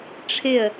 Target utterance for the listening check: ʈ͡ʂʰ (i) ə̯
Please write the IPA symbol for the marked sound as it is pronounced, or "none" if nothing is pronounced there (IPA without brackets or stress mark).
ɪ